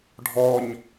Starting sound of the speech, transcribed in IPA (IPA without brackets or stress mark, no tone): ɖʱ